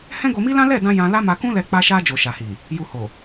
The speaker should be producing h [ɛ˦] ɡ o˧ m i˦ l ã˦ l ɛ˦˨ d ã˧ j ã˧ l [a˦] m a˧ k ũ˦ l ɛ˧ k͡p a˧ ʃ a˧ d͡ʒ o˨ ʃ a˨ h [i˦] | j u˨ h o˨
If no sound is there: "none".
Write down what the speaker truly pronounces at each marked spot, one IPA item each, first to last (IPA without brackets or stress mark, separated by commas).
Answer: ɛ̃˦, a˦, i˨